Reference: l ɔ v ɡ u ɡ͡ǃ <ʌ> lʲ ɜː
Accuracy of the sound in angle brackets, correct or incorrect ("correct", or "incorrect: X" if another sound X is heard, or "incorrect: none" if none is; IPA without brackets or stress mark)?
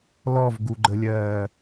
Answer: incorrect: ə